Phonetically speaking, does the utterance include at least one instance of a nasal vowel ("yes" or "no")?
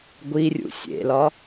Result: no